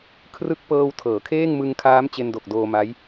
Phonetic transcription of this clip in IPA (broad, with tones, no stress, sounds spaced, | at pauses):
kʰ r ɯ˦˥ k̚ p ɤː˧ w tʰ ɤː˩˦ kʰ eː˥˩ ŋ m ɯ˧ ŋ kʰ aː˦˥ m t͡ɕ e˧ n d o˨˩ k̚ d oː˧ m a˦˥ j